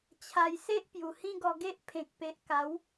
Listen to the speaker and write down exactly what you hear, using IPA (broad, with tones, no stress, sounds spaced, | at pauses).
t͡ɕʰ a˧ j s e˦ ʔ p j u˨˩ h ĩ˦ ɡ ɔ˧ ɡ e˦ ʔ pʰ ẽ˨ k̚ p e˨ ʔ k a˨˦ w